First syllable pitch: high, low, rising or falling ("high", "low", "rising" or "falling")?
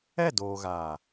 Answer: falling